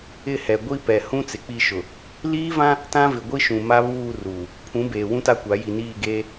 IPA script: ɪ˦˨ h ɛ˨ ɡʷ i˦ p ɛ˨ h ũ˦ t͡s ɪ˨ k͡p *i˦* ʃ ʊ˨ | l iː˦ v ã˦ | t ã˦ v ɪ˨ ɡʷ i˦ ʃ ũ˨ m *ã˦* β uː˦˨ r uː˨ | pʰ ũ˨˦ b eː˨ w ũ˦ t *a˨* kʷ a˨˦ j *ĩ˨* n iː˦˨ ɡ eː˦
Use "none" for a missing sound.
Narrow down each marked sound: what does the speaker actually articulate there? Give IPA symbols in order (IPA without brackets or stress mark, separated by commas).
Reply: i˦˨, a˦, a˦, i˨